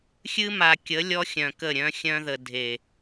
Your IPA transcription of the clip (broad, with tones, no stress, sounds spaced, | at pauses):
xʲ ɨ˦ m a˨ kʲ ə˨˦ lʲ ɔ˦ xʲ œ̃˨ k ə˦˨ ɾʲ œ̃˦ xʲ œ̃˦ ð ə˨ dʱ e˨